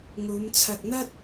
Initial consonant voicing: voiced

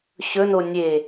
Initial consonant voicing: voiceless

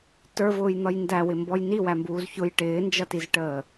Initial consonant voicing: voiceless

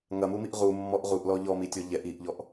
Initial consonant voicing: voiced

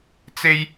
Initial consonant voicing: voiceless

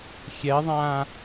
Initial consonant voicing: voiceless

